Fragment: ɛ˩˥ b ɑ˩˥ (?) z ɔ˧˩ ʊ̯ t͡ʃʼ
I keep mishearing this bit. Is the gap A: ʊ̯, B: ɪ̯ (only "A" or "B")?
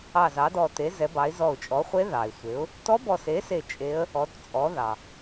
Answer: B